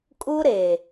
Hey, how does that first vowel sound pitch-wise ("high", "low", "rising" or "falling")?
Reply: high